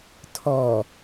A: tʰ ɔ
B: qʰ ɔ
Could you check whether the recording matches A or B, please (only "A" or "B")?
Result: A